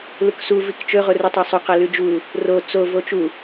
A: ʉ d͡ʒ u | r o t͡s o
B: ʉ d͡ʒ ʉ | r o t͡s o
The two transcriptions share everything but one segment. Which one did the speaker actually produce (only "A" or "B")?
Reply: A